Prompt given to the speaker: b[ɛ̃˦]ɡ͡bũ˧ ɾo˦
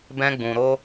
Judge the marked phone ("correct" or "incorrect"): correct